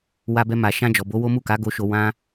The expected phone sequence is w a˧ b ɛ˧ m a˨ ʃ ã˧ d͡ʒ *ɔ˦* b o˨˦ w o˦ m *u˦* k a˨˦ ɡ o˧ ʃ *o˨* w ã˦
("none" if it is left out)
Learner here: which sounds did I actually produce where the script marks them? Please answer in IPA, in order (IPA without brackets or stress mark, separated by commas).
ɔ˨, u˦˨, o˧